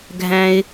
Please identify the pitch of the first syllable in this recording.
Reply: low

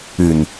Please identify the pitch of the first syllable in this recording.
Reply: low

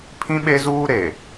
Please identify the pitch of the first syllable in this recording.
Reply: high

